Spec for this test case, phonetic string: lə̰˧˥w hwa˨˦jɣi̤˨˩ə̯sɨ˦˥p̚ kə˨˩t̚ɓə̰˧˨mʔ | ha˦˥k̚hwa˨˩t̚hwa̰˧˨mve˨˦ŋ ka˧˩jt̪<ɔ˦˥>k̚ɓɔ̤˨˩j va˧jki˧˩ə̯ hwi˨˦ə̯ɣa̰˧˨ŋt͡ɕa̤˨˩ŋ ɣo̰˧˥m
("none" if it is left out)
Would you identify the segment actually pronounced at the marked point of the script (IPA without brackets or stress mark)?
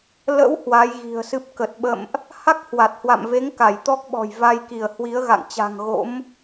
ɔ˦˥